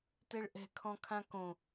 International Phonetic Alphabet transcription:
t ɛ ɭ ʔ ɛ̤ kʰ ɔ̃ kʰ ã k õ

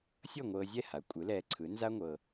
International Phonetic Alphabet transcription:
sʲ ɤ˥˩ ŋʷ ɤː˧ zʲ ɛ˥˩ h a˩˥ kʷʼ ɯ˩˥ l ɛː˧ ǀʰ ɯ˩˥ n z a˥ ŋʷ ɤ˧

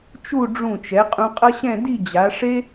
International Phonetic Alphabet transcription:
t͡ʃ u˥˧ ɖ͡ʐ ũ˧˩ t͡ʃ ɛ˩˧ qʼ ũ˧ qʼ ʌ˥ ɕ ɛ̃˥˧ d i˥˧ d͡ʑ a˩˧ ʂ e˥

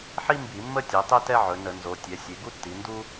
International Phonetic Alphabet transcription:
ħ i˥ m b i˧˩˧ mː ə˥ tʲ ɛ˩˧ tˤ e˥ t ɛ˥ ʕ ɵ˩˧ n ə˧˩˧ n z o˩˧ tʲ ɛ˩˧ sʲ e˩˧ ɡ u˥ tː i˩˧ n d u˥

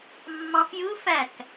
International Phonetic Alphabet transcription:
mː ɑ̃ f j ɯ f æ k

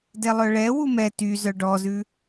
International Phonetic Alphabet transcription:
d ɛ lˠ œ ɭ ɛ w u m ɛ t y z œ ɖ ɔ z ʉ

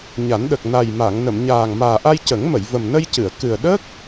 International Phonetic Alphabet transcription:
ɲ a˨˩˦ n ɗ ə˨˩ k̚ n a˨˩ j m a˨˩˨ ŋ n ə˨˩˨ m ɲ aː˨˩ ŋ m aː˨˩ ʔ a˧ j c ə˨˩˦ ŋ m ə˨˩˨ j v ə˨˩ m n ə˧ j c ɨ˨˩˨ ə̯ k ɨ˨˩ ə̯ ɗ ə˦˥ k̚

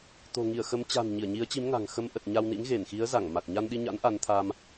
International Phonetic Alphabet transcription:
t̪ o̤˨˩ ŋ i˧˩ ə̯ x ə˨˦ m t͡ɕ a̤˨˩ n ɲ i˧˩ ə̯ ɲ i˨˦ ə̯ t͡ɕ i˨˦ m ŋ a̤˨˩ ŋ x ə˧ m ʔ ə˨˩ t̚ ɲ a˧ w n ḭ˧˥ ŋ ɣ e˧˩ n x i˨˦ ə̯ z a˧˩ ŋ m a˨˩ k̚ ɲ a˧ n ɗ i˧ ɲ a̰˧˥ n ʔ a˨˦ n t̪ʰ a˧ m

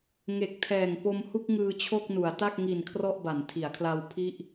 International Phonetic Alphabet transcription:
ŋ e˨˩ k̚ tʰ ɛː˨˩ ŋ p o˧ m h u˥˩ k̚ ŋ ɯː˧ t͡ɕʰ o˥˩ k̚ n u˩˦ a̯ t a˥˩ k̚ ŋ i˨˩ n kʰ r ɔ˥˩ ʔ b a˩˦ n tʰ i˩˦ a̯ kʰ l a˧ w pʰ i˥˩ ʔ

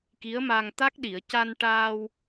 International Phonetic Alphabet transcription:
k i˧˥ ə̯ m a˧ ŋ t̪ a˦˥ k̚ ɗ i˨˩˨ ə̯ c a˧ n ʈ aː˧ w

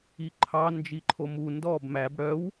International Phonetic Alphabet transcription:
i ǃʰ ɑ n d͡ʒ i ǃʰ o m u n d ɔ b m æ b ɽ œ w

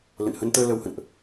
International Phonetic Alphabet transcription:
l ə̰˧˨ n h ə˧ n t̪ əː˧ l ə˧ w h ə̰˧˨ n ʔ

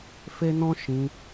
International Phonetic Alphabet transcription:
f e˦ n ɔ̃˦ ʃ ĩ˧

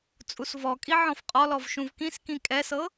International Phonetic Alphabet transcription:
t͡sʼ u s v ɔ kʼ i ʕ ɔ̃ f qʼ ɔ l ɔ v ʃ ũ v k ĩ s k ĩ kʼ ɛ s ɤ

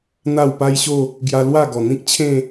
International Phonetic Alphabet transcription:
n̪ a˥˧ w p a˦ j ɕ o˥˧ | ɡ j a˧ l w a˥˧ ɡ ɔ˨˩ n̪ ĩ˦ k̚ t͡ɕʰ ẽ˥˧

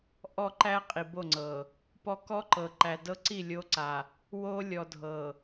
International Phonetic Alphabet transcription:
ʔ ɔ˦ ǃ æ˦ qʼ i˨ b o˦˨ ŋ͡ǀ ɤ˨ | p ɔ˦ k ɔ˦ ǃ ɤ˨ ǃ æ˨ d ɤ˦ ǀ i˦˨ lʲ o˦ ǀ a˨ | w o˦ lʲ ɔ˨ dʱ ɤ˨

